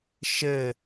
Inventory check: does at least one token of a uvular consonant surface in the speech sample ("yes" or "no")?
no